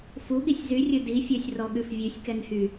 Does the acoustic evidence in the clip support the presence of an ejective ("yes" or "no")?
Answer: no